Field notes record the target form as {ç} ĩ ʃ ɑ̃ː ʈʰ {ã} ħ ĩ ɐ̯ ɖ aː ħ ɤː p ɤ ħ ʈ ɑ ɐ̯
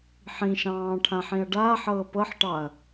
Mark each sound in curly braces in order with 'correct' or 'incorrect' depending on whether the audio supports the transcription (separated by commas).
incorrect, correct